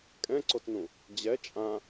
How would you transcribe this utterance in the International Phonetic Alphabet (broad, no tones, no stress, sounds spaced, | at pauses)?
kʼ ɛ̃ ǀ o t n ũ | d͡ʑ ɛ t͡ʃʼ ã